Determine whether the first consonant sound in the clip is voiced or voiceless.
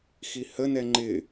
voiceless